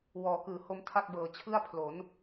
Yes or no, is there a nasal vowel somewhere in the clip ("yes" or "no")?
no